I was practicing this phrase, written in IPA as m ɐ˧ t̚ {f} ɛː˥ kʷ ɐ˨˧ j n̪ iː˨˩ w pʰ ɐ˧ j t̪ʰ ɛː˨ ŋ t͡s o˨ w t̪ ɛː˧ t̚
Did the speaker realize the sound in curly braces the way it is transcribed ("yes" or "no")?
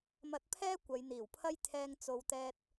no